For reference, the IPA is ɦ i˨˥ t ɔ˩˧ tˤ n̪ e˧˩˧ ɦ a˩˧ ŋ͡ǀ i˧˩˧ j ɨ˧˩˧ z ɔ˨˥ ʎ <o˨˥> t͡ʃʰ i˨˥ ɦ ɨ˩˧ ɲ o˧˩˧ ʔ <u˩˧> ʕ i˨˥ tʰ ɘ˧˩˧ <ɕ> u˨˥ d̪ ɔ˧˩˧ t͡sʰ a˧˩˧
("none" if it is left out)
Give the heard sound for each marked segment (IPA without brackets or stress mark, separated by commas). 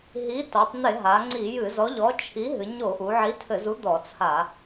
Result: ɔ˨˥, u˩˧, z